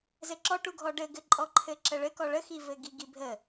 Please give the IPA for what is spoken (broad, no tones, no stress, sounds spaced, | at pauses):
z ɘ ǁ ɔ ʈ u ɡʱ ɔ ɖ ɘ ɡ ɘ ǃʼ ɔ ǃʰ ɘ ǁ ə ɭ ɘ k ɔ ɭ ə x i v ɘ ɡ i ɡ i bʱ ə